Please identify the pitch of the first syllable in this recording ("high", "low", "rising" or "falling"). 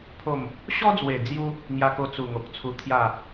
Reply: falling